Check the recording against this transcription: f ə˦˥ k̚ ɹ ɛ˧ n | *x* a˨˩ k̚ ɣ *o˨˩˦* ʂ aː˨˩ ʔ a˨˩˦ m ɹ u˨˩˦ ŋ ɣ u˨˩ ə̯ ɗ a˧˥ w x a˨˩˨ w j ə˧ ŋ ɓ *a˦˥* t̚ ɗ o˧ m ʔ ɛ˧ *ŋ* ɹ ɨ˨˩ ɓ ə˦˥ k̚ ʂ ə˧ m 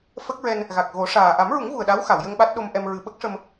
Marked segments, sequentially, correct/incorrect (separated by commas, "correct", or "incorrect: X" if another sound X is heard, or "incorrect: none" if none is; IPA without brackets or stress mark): incorrect: ɣ, correct, correct, incorrect: m